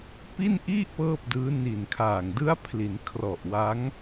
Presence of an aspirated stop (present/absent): present